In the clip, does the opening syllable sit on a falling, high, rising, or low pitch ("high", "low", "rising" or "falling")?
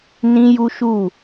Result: high